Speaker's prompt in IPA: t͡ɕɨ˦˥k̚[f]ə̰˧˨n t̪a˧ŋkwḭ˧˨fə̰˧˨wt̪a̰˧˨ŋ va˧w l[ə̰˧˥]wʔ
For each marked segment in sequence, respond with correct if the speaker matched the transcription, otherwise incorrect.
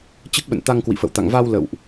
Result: incorrect: ɓ, incorrect: ə̰˧˨

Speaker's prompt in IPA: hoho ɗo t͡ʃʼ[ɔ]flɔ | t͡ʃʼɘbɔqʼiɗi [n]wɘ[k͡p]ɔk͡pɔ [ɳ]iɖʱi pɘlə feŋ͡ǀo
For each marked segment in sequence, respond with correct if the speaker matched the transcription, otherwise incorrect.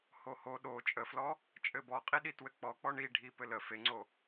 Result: incorrect: ə, incorrect: t, correct, correct

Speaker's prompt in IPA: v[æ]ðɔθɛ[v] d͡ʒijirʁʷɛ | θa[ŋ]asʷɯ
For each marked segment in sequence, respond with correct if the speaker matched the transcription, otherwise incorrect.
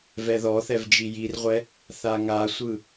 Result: incorrect: ɛ, correct, correct

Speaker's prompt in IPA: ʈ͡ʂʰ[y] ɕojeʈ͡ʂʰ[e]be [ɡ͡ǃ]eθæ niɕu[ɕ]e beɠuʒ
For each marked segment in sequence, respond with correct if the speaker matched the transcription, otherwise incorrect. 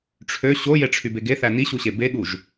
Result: incorrect: ø, incorrect: y, incorrect: ɡ, correct

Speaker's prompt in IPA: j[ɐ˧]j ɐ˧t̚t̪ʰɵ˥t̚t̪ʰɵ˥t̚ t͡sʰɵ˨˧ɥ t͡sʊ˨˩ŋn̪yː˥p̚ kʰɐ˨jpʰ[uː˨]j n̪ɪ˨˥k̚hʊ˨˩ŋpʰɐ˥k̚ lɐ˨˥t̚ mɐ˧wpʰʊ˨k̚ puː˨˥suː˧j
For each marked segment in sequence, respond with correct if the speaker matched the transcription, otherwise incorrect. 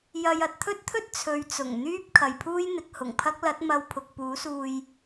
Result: incorrect: ɐ˨, incorrect: uː˥

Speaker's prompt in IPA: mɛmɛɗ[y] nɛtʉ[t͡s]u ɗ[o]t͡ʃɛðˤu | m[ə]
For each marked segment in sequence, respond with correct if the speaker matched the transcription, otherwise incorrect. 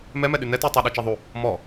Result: correct, incorrect: tˤ, incorrect: ɔ, incorrect: ɔ

